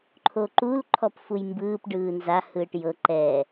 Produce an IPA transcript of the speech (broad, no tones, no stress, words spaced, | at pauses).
ǃʰoǃul ǃʰɔpfujmbɯːp ɖɯːnza hɯːʈjɤ ǃɛː